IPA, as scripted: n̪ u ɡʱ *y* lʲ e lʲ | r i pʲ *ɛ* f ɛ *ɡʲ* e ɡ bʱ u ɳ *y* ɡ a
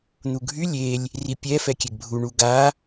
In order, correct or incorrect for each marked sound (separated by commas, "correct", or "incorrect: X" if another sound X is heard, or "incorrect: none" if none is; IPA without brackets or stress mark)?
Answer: correct, correct, incorrect: kʲ, incorrect: u